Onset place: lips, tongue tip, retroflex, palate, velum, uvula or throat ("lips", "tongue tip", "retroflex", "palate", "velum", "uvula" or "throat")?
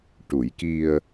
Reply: retroflex